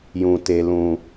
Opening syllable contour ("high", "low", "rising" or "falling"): low